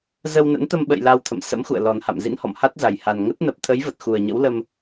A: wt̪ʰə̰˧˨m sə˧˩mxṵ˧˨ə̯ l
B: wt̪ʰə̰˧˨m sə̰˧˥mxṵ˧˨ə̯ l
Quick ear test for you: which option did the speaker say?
B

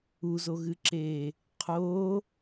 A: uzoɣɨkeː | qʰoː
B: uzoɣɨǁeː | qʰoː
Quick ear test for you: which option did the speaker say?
B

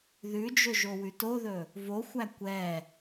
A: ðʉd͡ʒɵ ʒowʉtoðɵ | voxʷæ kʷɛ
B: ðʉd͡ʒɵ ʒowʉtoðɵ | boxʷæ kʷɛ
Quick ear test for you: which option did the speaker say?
A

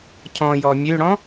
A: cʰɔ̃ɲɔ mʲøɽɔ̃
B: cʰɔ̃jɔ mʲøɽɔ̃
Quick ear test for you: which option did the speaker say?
B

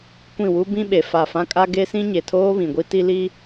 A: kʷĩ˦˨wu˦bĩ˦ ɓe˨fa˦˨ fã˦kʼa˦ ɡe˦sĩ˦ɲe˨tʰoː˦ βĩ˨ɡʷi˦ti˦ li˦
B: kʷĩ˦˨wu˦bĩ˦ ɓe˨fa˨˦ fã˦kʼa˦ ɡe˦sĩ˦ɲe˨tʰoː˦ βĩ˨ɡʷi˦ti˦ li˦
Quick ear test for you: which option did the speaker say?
A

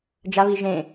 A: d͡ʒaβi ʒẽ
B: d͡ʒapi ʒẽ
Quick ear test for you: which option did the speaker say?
A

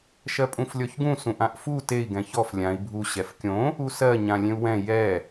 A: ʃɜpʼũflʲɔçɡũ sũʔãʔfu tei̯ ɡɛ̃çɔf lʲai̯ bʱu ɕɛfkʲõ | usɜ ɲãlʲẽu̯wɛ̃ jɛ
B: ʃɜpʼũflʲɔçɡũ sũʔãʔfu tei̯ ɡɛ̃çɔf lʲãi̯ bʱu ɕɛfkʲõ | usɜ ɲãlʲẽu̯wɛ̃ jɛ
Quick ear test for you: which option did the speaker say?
B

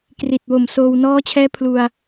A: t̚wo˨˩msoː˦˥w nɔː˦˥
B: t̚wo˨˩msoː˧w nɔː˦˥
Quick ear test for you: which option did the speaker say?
B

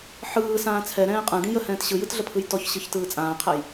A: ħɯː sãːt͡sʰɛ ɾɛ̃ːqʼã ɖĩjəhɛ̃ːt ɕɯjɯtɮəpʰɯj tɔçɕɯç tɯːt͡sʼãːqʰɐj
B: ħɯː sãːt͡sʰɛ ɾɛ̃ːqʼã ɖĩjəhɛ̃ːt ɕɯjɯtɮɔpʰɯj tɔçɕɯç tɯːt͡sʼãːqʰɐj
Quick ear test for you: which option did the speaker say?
A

